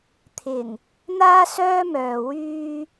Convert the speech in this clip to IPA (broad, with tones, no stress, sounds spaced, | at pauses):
t̪ʰ ɪ˨˩ ŋ | n̪ aː˥ s œː˥ m œː˨ w yː˧